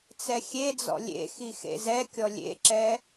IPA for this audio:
t͡s ɛ xʲ e d͡z ɔ̰ lʲ ḛ x i x ḛ z ɛ kʲ ɔ lʲ ḛ ǁ ɛ

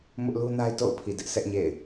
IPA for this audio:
m ʊ˦ ʔ l u˦ n a˦ ɪ̯ t o̰˦˨ ʊ̯ pʰ i˨ d ɪ˦ ʔ sʰ ɛ˦ ʔ ɲ ḛ˦˨ ɪ̯

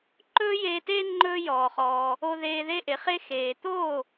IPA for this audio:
ǃ ɵː˥ j eː˧ t eː˥ ŋ͡ǃ ɵː˥ j ɔː˩ χ ɔː˩ | o˧ ð eː˧ ð e˥ ʔ e˩˥ χ e˥ x eː˩ t̪ oː˥˩

